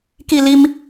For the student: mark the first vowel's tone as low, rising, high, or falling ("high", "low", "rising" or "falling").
falling